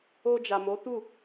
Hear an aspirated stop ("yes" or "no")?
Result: no